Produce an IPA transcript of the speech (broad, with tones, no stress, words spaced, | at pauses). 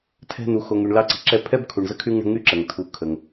tʰɛ̤˦n̪u˨ xo˨ ŋy˨ɳlɑ˥ǀi̤˨ǁɛ˥ pʰɛ˥bkʰu˨ɳ zə˥kʰy˥ŋɳə̤˦ ŋy˥ǁə˩ŋ tʰu˨ kʰə˩ŋ